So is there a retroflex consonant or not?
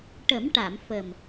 yes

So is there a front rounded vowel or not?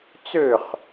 yes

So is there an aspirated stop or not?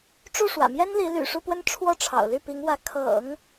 yes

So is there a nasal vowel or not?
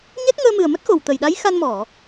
no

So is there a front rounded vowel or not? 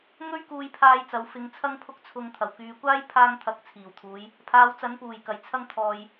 yes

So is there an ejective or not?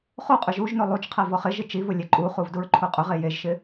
yes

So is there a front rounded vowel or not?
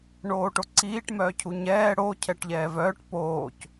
yes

